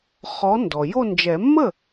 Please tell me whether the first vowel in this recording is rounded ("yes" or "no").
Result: yes